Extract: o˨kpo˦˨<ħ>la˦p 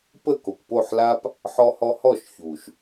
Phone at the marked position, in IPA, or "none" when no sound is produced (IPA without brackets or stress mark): ħ